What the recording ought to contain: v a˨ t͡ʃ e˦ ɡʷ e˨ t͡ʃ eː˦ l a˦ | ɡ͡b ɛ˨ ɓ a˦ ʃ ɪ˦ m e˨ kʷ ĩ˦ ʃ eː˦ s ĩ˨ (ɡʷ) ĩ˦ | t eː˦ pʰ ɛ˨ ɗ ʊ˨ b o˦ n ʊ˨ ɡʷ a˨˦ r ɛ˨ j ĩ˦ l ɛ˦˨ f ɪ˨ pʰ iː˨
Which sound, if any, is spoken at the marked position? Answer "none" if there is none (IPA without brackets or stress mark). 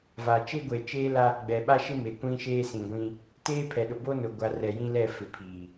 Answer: ɡʷ